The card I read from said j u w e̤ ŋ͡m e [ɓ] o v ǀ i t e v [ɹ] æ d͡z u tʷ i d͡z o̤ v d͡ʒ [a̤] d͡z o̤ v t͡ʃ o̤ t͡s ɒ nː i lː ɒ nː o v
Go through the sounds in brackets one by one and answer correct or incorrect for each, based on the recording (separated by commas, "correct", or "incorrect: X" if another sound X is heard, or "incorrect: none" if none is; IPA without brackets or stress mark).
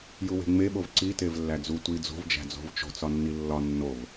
correct, incorrect: lː, incorrect: æ̤